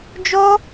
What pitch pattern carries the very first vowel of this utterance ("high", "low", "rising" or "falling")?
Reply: high